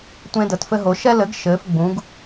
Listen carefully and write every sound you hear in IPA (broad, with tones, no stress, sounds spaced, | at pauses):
tʷ ẽ˦ d ə˨˦ t f ɘ˦ ɦ o˨˦ ʃ ɛ˦ l ɘ˨˦ ɡ ʃ ɘː˨˦ f ɡ͡b ũ˨˦ ɡ